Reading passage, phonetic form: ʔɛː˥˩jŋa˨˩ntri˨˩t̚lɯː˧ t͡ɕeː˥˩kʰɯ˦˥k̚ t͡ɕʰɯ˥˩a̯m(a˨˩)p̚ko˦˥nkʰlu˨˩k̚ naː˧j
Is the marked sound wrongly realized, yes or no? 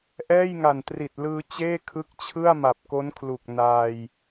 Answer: no